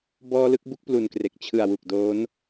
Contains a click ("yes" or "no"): no